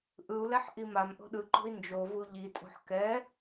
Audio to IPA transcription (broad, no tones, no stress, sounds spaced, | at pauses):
ʔ ɯ u̯ l ɛ ħ ʔ i m a m ʔ o̤ ɗ ɯ ǃ o̤ i̯ n d͡ʒ o v u ʎ i tʼ o̤ ħ k ɛ